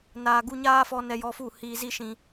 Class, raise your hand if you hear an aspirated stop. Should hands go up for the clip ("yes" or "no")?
no